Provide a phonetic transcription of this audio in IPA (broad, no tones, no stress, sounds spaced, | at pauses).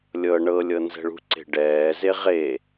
lʲ ɤ ɳ ɤ lʲ ɤ n z ɛ̤ ɭ ṳ ǀ e̤ ɖ ɛː z e ʁ e